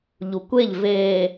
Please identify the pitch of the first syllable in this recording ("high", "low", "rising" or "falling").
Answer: low